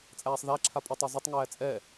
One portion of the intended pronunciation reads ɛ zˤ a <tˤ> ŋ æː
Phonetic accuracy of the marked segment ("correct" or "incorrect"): correct